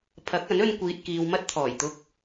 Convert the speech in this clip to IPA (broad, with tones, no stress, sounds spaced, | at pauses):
pʰ ɐ˨˥ k̚ ɐ˨˥ n ɵ˧ n kʷ iː˨ t̚ k iː˨ w m ɐ˧ t̚ t̪ʰ ɔː˨˩ j t̪ ʊ˧ k̚